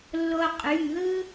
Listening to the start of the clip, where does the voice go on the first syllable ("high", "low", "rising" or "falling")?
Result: high